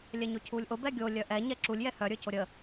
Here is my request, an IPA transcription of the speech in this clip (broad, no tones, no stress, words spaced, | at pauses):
lʲɛɲocʰulʲʔo bɛɡʲo lʲœʔɛ ɲɛǁulʲ jɛhœ ɾʲə˞coɾʲə